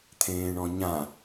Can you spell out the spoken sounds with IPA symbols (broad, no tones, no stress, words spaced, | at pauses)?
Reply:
t̪ʰẽːɳɔ̃ɲã